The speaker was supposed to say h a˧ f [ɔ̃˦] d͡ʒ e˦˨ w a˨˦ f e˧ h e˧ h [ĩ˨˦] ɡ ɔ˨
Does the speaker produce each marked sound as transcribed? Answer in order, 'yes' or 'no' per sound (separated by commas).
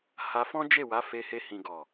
yes, no